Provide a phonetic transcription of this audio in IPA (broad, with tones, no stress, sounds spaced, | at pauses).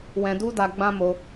w ɛ̃˧ d u˦ d a˧ ɡ͡b ã˦ m o˧